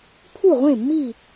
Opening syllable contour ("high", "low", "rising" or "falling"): falling